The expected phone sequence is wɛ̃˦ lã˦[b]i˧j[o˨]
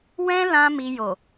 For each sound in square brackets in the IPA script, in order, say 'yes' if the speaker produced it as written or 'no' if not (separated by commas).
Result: no, yes